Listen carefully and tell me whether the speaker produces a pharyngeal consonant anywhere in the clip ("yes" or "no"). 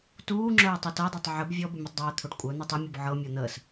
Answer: yes